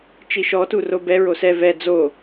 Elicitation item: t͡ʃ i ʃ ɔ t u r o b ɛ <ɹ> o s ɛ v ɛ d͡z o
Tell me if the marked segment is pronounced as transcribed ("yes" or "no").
yes